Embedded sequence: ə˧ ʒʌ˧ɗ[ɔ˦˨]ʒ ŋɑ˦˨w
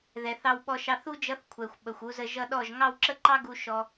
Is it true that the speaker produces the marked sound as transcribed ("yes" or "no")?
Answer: yes